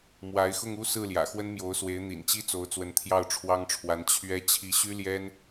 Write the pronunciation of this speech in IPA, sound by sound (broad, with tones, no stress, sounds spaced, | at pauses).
m w a˧˥ ɪ̯ x ʊ˥˧ ŋ u˥˧ s ɹ̩˥˩ l j ä̰˨˩ x w ə˥ n m j o˧˥ ʊ̯ s w e˧˥ ɪ̯ n̪ ḭ˨˩ n t͡ɕ i˥ t͡s o˧˥ ʊ̯ t͡s w ə˧˥ n t̪ʰ j ɑ˥˩ ʊ̯ ʈ͡ʂʰ w ɑ˥ ŋ ʈ͡ʂʰ w a˧˥ n t͡ɕʰ ɥ ɛ˥ t͡ɕʰ i˧˥ ɕ y˥ l j ɛ˥ n